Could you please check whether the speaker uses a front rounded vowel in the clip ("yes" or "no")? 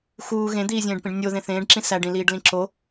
no